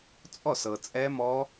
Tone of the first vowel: falling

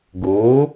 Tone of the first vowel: rising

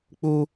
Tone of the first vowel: high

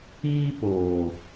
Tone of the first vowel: high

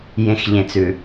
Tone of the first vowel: low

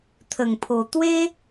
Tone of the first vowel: low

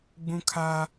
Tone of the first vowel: high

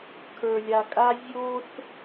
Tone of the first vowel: low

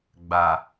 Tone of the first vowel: low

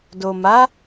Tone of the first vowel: low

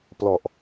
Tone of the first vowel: low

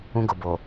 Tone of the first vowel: high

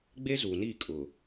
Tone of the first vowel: high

